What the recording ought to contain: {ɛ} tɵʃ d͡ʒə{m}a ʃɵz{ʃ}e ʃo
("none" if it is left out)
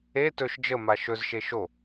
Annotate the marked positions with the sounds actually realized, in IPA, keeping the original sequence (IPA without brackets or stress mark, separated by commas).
e, m, ʃ